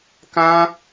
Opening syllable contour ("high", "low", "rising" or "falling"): high